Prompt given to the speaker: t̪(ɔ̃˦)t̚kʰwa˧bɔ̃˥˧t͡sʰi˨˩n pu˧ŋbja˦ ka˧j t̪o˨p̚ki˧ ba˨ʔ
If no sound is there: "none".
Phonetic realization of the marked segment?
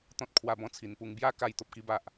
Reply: ɔ̃˦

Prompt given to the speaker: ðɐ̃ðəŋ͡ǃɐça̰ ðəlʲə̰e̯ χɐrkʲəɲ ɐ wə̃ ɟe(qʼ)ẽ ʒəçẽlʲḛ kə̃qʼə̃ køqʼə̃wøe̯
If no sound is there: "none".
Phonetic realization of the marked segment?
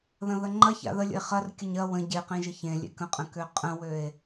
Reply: q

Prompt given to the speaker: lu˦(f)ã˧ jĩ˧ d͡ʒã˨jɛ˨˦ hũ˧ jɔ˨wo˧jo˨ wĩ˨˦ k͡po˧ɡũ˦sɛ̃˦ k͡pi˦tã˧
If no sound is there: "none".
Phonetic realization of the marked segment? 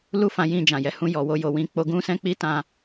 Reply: f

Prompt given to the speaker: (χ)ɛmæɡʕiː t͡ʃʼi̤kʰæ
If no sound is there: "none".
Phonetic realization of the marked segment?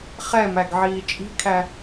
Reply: χ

